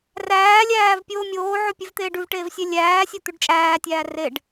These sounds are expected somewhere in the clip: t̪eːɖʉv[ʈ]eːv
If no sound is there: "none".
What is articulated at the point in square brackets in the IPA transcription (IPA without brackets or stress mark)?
ʈ